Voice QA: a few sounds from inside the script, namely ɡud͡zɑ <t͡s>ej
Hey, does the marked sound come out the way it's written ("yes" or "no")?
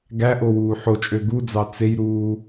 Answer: yes